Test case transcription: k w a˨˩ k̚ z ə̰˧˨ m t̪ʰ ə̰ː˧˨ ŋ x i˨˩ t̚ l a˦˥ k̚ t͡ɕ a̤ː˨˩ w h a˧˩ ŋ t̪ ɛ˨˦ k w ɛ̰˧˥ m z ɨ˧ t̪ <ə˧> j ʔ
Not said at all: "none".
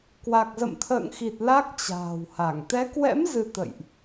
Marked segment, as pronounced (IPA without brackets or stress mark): ə̰˧˨